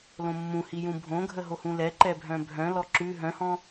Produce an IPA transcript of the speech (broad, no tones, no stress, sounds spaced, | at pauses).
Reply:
l õ mː ũ h i j ũ bʱ õ ɡʱ ə ɦ o h ũ l ɛ ǃ ɛ bʱ œ̃ bʱ œ̃ l ɔ ǁ ʉ ɦ œ̃ h ɔ̃